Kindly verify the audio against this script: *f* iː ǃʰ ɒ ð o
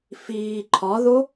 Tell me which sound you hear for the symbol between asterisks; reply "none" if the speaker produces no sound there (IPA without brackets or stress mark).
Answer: f